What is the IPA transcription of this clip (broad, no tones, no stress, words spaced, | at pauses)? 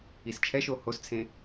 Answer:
ist͡ʃʰɛʃo host͡sʰẽ